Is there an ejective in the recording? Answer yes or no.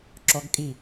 yes